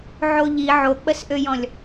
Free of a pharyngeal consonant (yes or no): no